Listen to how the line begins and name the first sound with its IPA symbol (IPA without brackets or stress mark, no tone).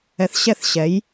ɛ